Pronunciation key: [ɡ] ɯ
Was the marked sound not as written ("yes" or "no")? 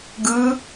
no